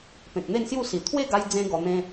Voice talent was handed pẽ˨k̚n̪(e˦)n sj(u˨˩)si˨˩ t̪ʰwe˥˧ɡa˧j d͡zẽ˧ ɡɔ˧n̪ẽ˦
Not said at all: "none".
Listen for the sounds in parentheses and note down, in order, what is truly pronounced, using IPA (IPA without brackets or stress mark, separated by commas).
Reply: e˥˧, u˥˧